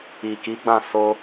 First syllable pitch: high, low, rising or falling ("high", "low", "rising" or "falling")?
low